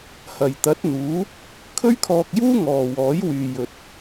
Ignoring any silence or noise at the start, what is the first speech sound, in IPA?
h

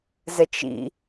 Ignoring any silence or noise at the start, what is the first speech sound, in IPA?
z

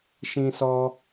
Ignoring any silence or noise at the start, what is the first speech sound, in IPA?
ʃ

